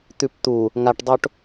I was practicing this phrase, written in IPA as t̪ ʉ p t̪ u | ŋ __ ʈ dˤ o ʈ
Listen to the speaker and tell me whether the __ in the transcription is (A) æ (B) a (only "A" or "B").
B